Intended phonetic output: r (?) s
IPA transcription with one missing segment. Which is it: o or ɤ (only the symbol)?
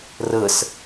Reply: ɤ